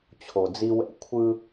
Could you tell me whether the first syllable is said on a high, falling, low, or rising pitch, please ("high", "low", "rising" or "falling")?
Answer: low